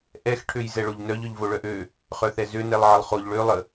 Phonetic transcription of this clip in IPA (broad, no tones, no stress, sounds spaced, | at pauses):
ʔ ɛ x ʈʰ ø j z ɛ ɭ o ʎ n œ ʎ œ ʎ v o ɭ œ ʔ ø | χ œ θ ɛ z ø n ɛ lˠ ʕ ə lˠ χ o ʎ ɭ ø lˠ ə